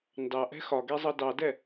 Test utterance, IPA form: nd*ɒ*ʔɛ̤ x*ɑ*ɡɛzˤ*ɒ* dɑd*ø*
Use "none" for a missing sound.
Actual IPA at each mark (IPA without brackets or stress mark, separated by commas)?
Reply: ɑ, ɒ, ʌ, ɛ